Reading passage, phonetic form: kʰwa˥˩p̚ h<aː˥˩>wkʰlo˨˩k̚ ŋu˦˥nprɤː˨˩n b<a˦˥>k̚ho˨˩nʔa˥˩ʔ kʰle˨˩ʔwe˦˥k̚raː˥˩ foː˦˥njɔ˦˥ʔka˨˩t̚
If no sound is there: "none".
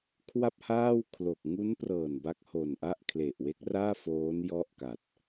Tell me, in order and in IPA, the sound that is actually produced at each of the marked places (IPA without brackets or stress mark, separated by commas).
aː˥˩, a˦˥